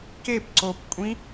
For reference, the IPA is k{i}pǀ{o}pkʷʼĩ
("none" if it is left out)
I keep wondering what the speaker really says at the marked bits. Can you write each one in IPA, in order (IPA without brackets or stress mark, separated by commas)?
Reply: e, o